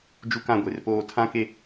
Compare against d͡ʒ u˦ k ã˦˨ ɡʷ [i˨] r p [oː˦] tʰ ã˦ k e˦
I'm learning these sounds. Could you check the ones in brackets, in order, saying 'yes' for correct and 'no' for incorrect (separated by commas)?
no, yes